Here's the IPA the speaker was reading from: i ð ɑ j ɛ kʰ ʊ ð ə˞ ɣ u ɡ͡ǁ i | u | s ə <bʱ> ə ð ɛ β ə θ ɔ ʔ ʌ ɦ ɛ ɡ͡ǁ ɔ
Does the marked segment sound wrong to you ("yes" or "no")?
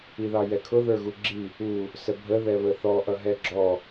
no